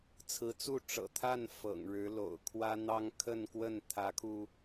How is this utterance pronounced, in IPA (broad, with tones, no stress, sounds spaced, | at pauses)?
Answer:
t͡sʰ ɹ̩˧˥ t͡s u˥˩ ʈ͡ʂ ɤ̰˨˩ t̪ʰ a˥˩ n f ɤ̰˨˩ ŋ ɻ ɻ̩˧˥ l o̰˨˩ ʊ̯ kʰ w ä˥ n̪ ɑ˥ ŋ kʰ ə˥˧ n k w ə˥˩ n t̪ʰ ä˧˥ kʰ u˧